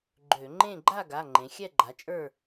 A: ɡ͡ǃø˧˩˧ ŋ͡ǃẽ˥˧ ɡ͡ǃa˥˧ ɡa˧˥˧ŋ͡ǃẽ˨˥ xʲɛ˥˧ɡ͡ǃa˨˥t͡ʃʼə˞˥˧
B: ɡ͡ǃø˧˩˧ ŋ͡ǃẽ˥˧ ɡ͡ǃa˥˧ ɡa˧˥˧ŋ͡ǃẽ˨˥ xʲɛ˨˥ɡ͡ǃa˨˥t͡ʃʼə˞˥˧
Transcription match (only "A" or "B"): A